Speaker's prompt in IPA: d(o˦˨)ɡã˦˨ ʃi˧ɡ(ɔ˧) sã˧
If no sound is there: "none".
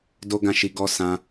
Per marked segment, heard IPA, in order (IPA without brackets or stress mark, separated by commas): o˦, ɔ˦